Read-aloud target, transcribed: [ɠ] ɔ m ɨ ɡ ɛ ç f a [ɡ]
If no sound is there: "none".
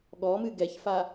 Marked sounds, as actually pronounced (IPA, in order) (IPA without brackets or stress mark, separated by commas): ɠ, none